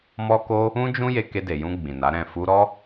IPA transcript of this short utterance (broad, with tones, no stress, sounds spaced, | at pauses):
m ɔ˦ k o˦ | ũ˦ d͡ʒ ũ˦ j e˧ k e˧ d e˨ j ũ˧ ɡ͡b ĩ˨ n a˨˦ ɾ ɛ̃˦˨ f u˧ ɾ ɔ˦